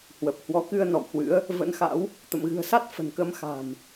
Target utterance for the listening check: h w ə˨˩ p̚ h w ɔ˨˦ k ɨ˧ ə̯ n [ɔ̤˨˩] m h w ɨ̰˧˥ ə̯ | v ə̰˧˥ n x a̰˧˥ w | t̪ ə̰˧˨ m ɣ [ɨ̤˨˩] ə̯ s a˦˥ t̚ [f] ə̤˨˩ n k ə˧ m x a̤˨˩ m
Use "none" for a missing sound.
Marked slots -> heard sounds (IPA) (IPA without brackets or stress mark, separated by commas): ɔ̰˧˨, ɨ̤˨˩, f